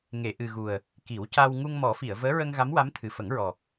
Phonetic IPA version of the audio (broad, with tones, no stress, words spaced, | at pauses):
ŋe˨˩˨ʔɨ˨˩ɣu˨˩ə̯ | ki˨˩˦wca˧w ŋu˧ŋmɔ˨˩˦fi˨˩˨ə̯ vəː˧˥ɹə˧ŋɣa˧˥m wa˧˥mt̪ʰɨ˨˩ fə˨˩˦ŋɹɔ˨˩